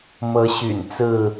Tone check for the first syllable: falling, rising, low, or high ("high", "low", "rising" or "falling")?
rising